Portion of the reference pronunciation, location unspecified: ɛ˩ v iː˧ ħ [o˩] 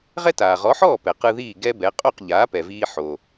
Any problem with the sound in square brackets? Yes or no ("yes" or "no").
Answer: no